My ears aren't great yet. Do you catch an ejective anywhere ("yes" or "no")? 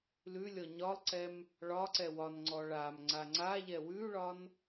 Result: no